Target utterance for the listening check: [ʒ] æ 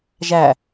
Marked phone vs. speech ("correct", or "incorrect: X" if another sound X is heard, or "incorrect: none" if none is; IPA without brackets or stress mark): correct